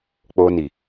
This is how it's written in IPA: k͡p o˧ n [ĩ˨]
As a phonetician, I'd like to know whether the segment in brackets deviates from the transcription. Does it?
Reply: yes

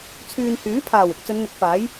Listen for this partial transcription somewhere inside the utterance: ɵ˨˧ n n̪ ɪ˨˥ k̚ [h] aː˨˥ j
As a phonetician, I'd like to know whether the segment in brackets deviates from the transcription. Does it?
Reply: yes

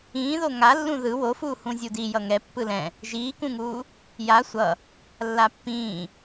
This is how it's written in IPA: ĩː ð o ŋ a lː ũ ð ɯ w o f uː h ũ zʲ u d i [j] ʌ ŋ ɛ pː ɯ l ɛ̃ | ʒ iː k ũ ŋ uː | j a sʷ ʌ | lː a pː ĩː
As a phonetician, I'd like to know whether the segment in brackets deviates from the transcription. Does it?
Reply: no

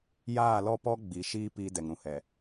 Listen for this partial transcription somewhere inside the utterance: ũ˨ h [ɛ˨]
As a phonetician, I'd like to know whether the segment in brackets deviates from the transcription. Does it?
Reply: no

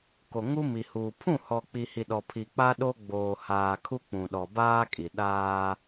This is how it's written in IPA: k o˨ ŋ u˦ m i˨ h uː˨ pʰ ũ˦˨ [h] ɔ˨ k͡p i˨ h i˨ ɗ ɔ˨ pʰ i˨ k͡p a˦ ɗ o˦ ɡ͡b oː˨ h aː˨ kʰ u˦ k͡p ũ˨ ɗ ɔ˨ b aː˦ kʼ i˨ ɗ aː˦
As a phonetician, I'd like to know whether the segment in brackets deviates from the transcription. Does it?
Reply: no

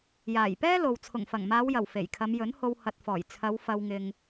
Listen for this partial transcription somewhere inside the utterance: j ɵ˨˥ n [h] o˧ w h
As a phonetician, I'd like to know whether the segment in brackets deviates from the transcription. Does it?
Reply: no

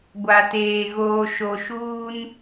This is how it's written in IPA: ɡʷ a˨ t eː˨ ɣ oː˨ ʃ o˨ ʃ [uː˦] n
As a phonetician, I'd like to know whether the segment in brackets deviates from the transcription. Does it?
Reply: no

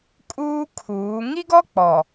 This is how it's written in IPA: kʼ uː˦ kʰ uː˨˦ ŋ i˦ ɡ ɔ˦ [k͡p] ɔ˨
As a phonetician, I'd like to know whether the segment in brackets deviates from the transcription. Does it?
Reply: no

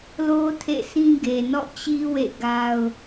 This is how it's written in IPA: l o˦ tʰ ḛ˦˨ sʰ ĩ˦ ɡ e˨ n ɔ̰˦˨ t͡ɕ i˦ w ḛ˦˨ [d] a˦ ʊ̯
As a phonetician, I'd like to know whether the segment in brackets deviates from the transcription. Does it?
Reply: yes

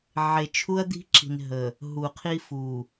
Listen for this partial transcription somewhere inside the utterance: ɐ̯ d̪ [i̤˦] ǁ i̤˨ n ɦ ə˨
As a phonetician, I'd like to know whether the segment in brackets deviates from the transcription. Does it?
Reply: no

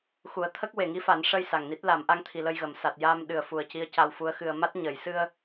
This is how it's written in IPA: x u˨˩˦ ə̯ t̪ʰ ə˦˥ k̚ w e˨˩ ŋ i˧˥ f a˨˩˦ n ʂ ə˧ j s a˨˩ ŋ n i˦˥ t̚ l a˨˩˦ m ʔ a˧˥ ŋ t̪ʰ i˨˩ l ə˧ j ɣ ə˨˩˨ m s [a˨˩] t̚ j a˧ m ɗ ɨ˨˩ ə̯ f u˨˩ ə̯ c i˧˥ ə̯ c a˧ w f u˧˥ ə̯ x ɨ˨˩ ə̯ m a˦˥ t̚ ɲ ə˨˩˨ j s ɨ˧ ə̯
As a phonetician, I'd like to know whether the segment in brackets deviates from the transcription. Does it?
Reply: no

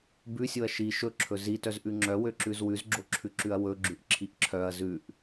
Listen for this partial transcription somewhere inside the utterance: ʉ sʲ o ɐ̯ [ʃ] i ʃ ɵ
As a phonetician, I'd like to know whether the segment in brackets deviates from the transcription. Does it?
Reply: no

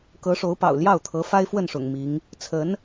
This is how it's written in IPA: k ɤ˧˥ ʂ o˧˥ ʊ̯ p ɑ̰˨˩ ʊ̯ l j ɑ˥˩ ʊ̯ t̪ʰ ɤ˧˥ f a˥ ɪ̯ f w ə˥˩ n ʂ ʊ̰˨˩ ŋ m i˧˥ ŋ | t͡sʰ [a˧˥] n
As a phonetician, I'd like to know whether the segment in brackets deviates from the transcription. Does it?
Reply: yes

